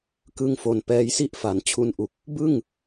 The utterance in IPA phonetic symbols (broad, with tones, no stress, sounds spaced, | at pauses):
k ɯ˧ ŋ f o˨˩ n p ɛː˧ j s i˥˩ ʔ f a˩˦ n t͡ɕʰ u˧ n ʔ u˨˩ k̚ | b ɯ˥˩ ŋ